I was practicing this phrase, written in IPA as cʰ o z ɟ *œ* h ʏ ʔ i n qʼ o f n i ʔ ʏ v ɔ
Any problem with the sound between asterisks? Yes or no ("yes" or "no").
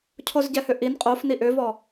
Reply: yes